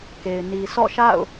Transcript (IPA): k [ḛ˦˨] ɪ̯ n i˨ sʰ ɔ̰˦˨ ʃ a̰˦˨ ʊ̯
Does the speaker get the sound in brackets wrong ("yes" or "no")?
yes